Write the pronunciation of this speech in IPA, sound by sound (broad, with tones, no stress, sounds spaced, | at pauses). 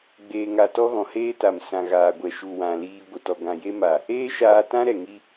ɡ͡b eː˧ ŋ a˧ t ɔ˦ ɣ ɔ̃˨ h eː˦ t a˨ m s ã˨ ɣ aː˨ ɡʷ ɛ˨ ʃ u˨ w ã˨ l iː˧ ɡʷ ə˨ t ɔ˨ ɡ ã˨ j e˦ m a˨ | eː˦ ʃ aː˧ t ã˦ ɾ ɛ˨ ŋ i˦